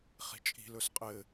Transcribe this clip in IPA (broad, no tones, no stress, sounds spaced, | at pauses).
χ i̤ t͡ʃʼ i̤ l ɵ s qʼ ɘ